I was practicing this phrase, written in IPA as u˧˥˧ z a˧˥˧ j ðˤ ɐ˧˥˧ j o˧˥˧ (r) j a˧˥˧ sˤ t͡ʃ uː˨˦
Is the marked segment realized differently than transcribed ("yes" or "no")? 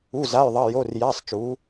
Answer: no